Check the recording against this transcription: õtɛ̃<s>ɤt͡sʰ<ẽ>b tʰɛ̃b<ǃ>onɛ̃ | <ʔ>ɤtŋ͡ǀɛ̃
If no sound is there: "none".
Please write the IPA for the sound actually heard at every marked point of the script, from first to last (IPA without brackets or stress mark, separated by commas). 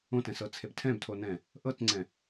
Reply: s, e, tʰ, ʔ